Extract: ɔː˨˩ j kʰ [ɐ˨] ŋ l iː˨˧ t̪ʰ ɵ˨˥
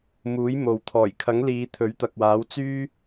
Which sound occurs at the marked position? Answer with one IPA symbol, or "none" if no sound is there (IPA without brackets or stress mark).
ɐ˨˥